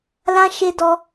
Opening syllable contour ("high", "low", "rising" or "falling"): high